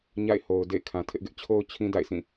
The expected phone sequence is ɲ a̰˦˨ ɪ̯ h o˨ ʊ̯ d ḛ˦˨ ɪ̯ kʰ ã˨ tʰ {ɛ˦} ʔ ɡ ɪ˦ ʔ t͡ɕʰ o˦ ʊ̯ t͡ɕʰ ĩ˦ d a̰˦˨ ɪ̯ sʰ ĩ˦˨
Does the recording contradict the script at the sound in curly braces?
yes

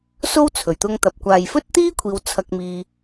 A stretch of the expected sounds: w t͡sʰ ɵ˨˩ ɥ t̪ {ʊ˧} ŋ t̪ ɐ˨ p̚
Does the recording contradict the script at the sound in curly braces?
no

